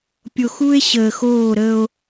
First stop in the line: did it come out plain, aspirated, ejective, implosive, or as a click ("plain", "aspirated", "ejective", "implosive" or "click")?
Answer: plain